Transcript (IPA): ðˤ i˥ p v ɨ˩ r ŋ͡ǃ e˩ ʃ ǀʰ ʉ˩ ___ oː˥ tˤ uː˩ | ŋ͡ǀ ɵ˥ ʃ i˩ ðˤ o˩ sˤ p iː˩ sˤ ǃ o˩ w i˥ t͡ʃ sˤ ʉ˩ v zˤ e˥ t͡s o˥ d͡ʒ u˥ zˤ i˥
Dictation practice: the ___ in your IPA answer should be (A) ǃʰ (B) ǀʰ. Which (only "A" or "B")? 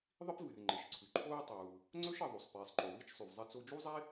A